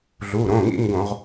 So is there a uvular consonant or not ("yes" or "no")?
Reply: yes